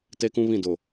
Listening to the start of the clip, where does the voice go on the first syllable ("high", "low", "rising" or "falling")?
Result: high